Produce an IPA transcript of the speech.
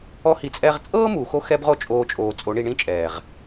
ɔ˦ h i˧ t͡sʼ ɛ˦ ʁ t͡sʼ ɤː˦ m u˨ x o˧ x ɛ˦ b ʁ o˦ t͡ʃʼ oː˧ t͡ʃʼ oː˨ t͡sʼ o˨˦ ɳ i˧ ɳ ĩ˦ t͡ʃʼ ɛː˨ ʁ

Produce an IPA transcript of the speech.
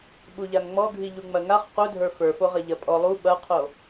ɓ u ʎ a ŋ ŋ͡m ɔ ɡʱ i ʎ u ŋ͡m ɐ ŋ a χ q u dʱ ə˞ f ə˞ f o ʁ ɐ ʎ ɐ pʼ ɔ lˠ u ɓ ɐ qʰ o

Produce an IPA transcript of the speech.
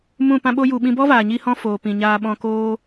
m ũ˦˨ p ã˦ ɓ o˦ j u˧ ɓ ĩ˧ b ɔ˦ v aː˨ ɲ i˦ h ɔ̃˦ f oː˨ p ĩ˨ ɲ aː˧ ɓ ɔ̃˧ k oː˦

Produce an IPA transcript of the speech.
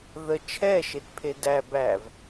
ð ə t͡ʃʰ ɛ ʃ e t pʰ e d æ b æ v

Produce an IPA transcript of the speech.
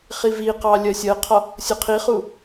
χ i v i q ɑ lʲ ɜ sʲ ɜ qʰ ɒ | sʲ ʊ qʰ i χ u

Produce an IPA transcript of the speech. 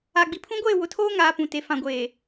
a˨ ɡ͡b i˨ pʰ ũ˦ ɡʷ eː˦˨ w ʊ˨ tʰ oː˦ ŋ aː˨ p ũ˨ t e˨ f ã˨ ɡʷ eː˨

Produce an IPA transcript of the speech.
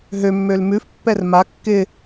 ɦ ø mː ø l m ʉ f pː ɛ r m a kː ɪ

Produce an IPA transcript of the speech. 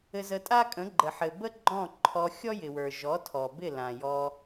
ɘ˧ z ə˧ tʼ a˦ kʼ ə̃˨˦ ɡ͡ǃ ə˨ ħ ɘ˨ b ə˦ ɡ͡ǃ ɔ̃˦˨ ǃʰ ɔ˧ xʲ ɔ˦ j ɪ˨ w ə˞˨ ʒ ɔ˨˦ tʰ ɔ˨ b ɪ˦˨ l ã˨ j ɔ˧

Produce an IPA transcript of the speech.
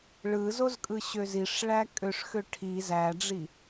ɭ ɯ z o z kʼ ɯ ɕ ø z i ʂ ɭ æ kʼ ø ʂ x ø ʈʰ i z æ ɖ͡ʐ i

